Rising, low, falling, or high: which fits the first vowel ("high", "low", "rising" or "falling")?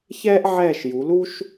high